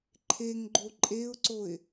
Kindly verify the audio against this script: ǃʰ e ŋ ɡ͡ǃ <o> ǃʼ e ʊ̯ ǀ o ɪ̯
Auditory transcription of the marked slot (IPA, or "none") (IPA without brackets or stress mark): o